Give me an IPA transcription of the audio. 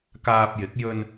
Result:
k aː˧ p̚ j ɪ˨˥ k̚ j ɵ˧ n

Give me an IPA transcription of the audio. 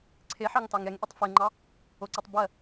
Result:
ǀʰ e ħ ɑ ŋ t ɑ ŋ ɛ ŋ ʔ i tˤ f e ŋ͡ǃ ɑ | o ǀ i tˤ b ɜ

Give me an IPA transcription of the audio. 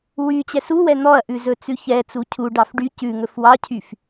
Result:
w y t͡ɕ ɛ s u w ɛ n̪ ɔ ɐ̯ ʔ ʉ z ɵ t͡s ʉ ç ɛ t͡s u cʰ u ɖ ɑ f ɖ y c ʉ ŋ ɵ f w ɑ cʰ y f

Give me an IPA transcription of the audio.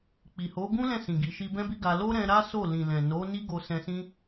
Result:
k͡p i˨ h o˨˦ ɡ ũ˦ l ɛ̃˦˨ s ĩ˨ ɡ i˨ ʃ i˧ b ɛ̃˦ b i˦ ɡ a˧ l o˦ ɾ ɛ̃˧ ɾ a˦ s o˦˨ l ĩ˨ l ɛ̃˨ n o˨˦ n i˦ ɡ o˧ s ɛ̃˧ s ĩ˦

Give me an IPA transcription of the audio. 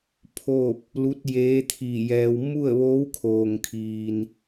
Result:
pʰ o˥˨ p̚ | l u˧˥ t̚ j eː˧˥ t̪ʰ i˧˩ j ɛː˧ w m u˥˨ ə̯ ʋ oː˧˥ w kʰ oː˩ ŋ kʰ iː˩ n

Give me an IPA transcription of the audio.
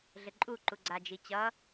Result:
ɮ ɘ ǃʼ u ǃ u ɡ͡ǀ a d͡ʒ i t͡ɕ ʌ

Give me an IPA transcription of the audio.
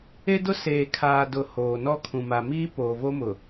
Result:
e˦ d ʊ˦ s eː˨ kʰ aː˨ d ʊ˨ h oː˨ n ɔ˦ kʰ ũ˨ m a˨ m iː˦ p oː˨ v o˦ m ʊ˨

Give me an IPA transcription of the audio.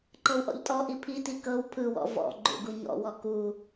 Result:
ǃ ɤ w ʔ ɔ̰ ʎ tʼ ɔ ʔ i pʰ i t i k ɤ w pʰ ɯ w ɔ̰ v ɔ̰ ɡ͡ǃ ṵ ɡ u ɲ ɔ̰ w ɔ k u

